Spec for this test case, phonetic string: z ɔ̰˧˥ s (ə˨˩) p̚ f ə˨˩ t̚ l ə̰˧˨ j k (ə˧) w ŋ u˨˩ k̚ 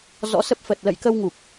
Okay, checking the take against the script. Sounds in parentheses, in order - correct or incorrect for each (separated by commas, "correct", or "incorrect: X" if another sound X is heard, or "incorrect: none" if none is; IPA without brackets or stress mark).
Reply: incorrect: ə˦˥, correct